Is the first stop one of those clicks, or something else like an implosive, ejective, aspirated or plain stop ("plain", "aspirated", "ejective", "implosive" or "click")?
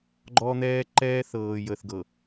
click